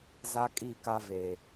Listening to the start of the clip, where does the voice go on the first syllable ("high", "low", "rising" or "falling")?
high